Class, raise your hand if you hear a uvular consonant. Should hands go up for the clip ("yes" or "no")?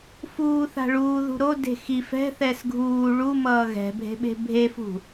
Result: no